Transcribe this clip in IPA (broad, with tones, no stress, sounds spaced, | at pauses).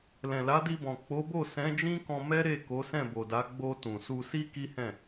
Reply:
l ɛ̃˨ l a˨˦ d i˧ b ɔ̃˨ k͡p o˨˦ b o˦˨ s ɛ̃˨˦ d͡ʒ ĩ˦ k ɔ̃˧ m ɛ˦ ɾ e˦˨ k o˨˦ s ɛ̃˦˨ b o˨ d a˨˦ ɡ͡b o˧ t ũ˨ s u˧ s i˦ k i˦ h ɛ̃˦˨